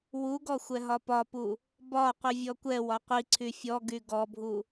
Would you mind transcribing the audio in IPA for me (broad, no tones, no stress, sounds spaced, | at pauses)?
w u ɡ ɔ xʷ ɛ ɦ ɒ p ɒ p u | b ɒ qʷ i vʲ ɔ kʷ ɛ w ɒ qʷ i ǀʰ y fʲ ɔ ɡ y ɡ ɔ bʱ u